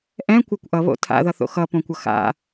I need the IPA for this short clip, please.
ʔ ɛ̃ kʷ a kʷ ʔ ʌ β o̰ tʰ a̰ ð ʌ θ o̰ x ʌ p õ kʷ ʌ x a̰

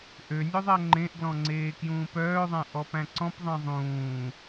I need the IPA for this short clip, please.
ʔ ø nʲ œ ðˤ æ ŋ͡ǃ ẽ ʔ ɡ l ɔ̃ ŋ͡ǀ eː k j ũː p œː ðˤ æ̃ ʔ ɔ p æ̃ ǀ ɔ̃ p ðˤ ẽ ðˤ ũː

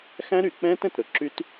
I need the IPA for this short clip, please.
x æ̃˦ ɾ y˨ k͡p ɛ̃ː˦ t ɛ̃˨ t ɾ ɵ˨ ǁ y˦ t

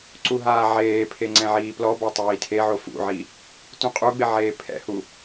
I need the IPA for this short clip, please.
ǀ u ɦ aː ʕ eː pʰ e ŋ͡ǀ ɛ̃ ʕ iː p l ɔ b ɔ tˤ iː tʰ e ʕ o f ṵ ʕ i | t ũ qʼ u ɡ͡b ɪ ʕ eː pʰ ɛ̰ h u

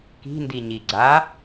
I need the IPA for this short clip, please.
k i̤ n d i ɲ i ɡ͡ǀ a

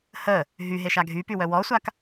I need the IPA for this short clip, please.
h ə | ɦ y ɦ e ʃ a ɡʱ y p y w œ w ɔ sʷ a k

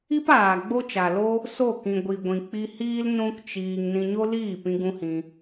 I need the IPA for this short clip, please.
i˦ p aː˨ ɡ͡b o˦ t͡ʃ a˨ l o˦ | s o˦˨ k ĩ˨ ɡʷ i˨ ɡʷ ĩ˨ k͡p i˧ h iː˦ l n ũ˦ k t͡ʃ iː˧ ŋ n ĩ˧ ɲ o˦ l iː˦˨ p ĩ˧ ɡ ũ˦ h ĩ˧

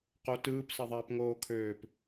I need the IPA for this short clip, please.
q o t ɯː p s ɛ ðˤ ɛː p ŋ oː kʰ øː p

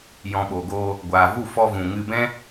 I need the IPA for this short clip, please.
j ɔ̃˨ ɓ o˨ ɡ oː˧ | ɡʷ aː˨ v u˦˨ f ɔ˧ v ũ˨ ŋ ɨ˧ b ɛ̃˦

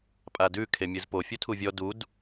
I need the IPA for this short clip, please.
pʼ a d ʉ kʰ e mʲ ɯ z p o fʲ o tʰ u vʲ ɔ d u d

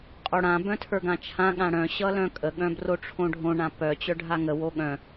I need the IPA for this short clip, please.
qʼ o ɽ ã b œ̃ tʰ ə˞ ɡ ã t͡ʃʰ ã ɠ ã ɽ œ̃ ɕ ʌ l œ̃ kʼ ə ɠ œ̃ b r o ʈ͡ʂʰ õ ɖʱ õ ɳ ã p œ t͡ɕ œ ɖʱ a ŋ ə w o ɠ œ̃

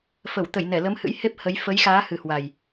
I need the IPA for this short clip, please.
f ə˧˩ w t̪ ə˧˩ j n ɛ˧˩ l ə˨˦ m h ɨ̰˧˥ j h e˦˥ p̚ h ə˨˦ j f ə˨˦ j x aː˨˦ h ɨ˨˩ h w a˨˩ j

